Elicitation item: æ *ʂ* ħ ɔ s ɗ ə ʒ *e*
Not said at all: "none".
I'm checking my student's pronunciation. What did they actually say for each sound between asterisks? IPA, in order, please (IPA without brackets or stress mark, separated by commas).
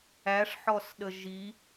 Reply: ʂ, i